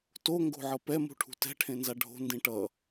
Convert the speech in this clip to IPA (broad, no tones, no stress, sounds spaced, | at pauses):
t o ŋ ɡ o̤ ʕ ʌ p ɛ m ṳ ʈʰ ṳ t ɛ̤ ʈʰ ẽ n z a ɖʱ o̤ n d ĩ ʈ ʌ